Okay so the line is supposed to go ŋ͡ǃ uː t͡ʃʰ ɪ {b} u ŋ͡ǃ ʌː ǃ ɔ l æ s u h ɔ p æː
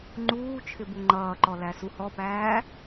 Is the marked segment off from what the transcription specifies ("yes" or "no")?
no